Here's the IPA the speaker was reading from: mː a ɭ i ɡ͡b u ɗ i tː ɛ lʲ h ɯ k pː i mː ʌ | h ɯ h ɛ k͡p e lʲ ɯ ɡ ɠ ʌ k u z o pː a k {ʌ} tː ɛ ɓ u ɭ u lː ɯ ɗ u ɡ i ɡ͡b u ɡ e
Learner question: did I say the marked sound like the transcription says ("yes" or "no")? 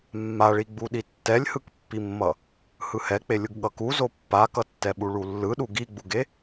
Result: yes